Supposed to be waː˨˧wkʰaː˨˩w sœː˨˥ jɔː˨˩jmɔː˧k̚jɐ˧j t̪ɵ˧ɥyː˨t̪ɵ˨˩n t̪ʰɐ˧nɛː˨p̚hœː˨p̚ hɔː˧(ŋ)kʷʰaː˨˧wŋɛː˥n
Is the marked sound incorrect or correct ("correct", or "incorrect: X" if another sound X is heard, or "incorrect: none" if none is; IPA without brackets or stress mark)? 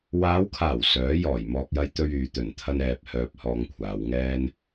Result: correct